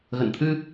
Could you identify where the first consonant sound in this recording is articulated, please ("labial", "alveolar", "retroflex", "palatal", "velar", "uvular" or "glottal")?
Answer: velar